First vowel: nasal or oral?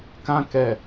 nasal